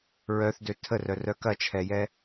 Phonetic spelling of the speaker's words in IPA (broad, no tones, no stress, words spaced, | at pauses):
ɹœθdø tʰərœrœ kɐt͡ʃʰɛjɛ